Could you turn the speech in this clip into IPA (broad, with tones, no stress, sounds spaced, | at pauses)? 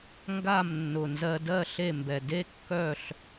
ŋ ɡ a˥˨ m nː ʊ˨˩ n z ɜ˧ d ɜ˥˨ ɬ e˥˨ m b ɛ˨˩ d e˥ kː œ˥˨ ɬ